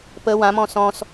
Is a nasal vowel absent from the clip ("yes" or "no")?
no